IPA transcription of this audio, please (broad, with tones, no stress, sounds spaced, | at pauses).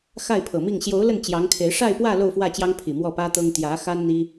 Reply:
x a˥˩ ɪ̯ pʰ ɤ˨˩ m i˥˩ ŋ ɕ j o˧˥ ʊ̯ l ə˥˩ n t͡ɕ j ɑ˧˥ ŋ kʰ e˧˥ ɪ̯ ʂ a˥˧ ɪ̯ p w ä˥˧ l o˥˧ ʊ̯ f w ä˥˩ t͡ɕ j ɑ˥ ŋ pʰ i˨˩ m w ɔ˥˩ p ä˥ t̪ ɤ˥ ŋ t̪ j ä˧˥ x a˥ n n̪ i˥